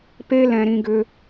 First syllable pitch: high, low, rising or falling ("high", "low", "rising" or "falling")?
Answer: high